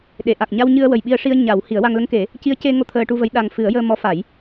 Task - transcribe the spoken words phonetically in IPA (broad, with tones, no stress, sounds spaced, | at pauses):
ɗ e˨˩˨ ʔ a˨˩ k̚ ɲ a˧ w ɲ ɨ˧ ə̯ w ə˨˩ j ɓ i˧ ə̯ ʂ i˧ ə̯ ɲ a˨˩˦ w h i˨˩˦ ə̯ w a˧ ŋ l ə˧ ŋ k e˨˩˦ | c i˧˥ ə̯ c e˧ ŋ o˧ t̪ʰ əː˧ ʈ u˧ v ə˧˥ j ɗ a˨˩ ŋ f ɨ˨˩˦ ə̯ j əː˧ m ɔ˧˥ f a˨˩˦ j